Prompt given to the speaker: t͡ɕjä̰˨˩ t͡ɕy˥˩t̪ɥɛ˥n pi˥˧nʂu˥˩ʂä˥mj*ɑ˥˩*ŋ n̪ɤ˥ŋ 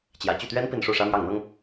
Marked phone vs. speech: correct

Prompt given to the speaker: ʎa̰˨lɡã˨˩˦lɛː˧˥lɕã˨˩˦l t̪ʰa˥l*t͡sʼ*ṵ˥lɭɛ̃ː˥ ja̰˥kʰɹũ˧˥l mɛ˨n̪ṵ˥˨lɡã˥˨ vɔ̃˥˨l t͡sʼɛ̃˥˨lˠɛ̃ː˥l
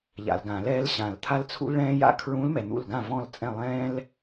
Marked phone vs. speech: incorrect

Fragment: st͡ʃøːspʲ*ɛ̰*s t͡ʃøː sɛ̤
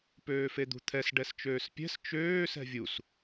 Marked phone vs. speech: incorrect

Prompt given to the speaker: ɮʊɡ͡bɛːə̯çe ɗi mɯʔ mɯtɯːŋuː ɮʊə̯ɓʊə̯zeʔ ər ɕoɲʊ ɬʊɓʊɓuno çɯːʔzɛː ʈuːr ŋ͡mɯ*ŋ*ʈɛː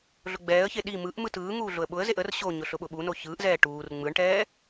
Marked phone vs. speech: incorrect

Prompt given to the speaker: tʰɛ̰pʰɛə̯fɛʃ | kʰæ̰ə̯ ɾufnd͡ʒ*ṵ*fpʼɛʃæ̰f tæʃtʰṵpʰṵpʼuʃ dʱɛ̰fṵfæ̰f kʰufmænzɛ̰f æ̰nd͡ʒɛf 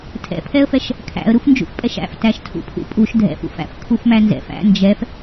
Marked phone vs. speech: correct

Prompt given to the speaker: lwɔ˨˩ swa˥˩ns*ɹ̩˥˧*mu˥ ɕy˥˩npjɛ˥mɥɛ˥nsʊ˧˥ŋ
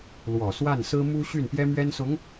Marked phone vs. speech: incorrect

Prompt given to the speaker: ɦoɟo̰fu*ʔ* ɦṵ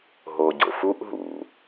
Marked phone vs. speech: correct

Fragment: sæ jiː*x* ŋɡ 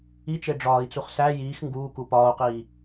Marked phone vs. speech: correct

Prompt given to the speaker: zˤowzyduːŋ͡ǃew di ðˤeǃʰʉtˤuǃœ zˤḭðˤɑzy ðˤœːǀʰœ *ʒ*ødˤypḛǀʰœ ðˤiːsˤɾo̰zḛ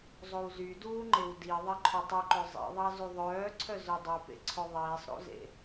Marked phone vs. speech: incorrect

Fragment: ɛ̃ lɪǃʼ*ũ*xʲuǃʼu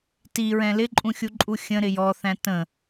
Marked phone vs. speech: correct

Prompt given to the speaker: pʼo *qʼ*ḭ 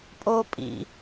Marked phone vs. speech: incorrect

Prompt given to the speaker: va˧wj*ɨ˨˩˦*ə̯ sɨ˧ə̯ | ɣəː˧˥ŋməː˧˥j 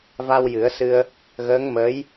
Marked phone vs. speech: correct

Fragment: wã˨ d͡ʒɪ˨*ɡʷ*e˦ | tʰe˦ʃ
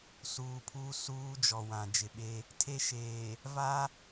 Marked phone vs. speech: incorrect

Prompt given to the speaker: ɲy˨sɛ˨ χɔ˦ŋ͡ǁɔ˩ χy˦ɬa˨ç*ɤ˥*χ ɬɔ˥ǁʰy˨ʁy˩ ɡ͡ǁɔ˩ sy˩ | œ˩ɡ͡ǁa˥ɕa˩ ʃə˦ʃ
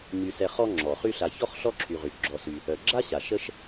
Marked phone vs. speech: incorrect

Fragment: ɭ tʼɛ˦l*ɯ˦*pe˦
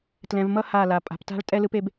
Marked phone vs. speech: correct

